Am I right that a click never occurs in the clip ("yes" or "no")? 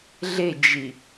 yes